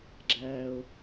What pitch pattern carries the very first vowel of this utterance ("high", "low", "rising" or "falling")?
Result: low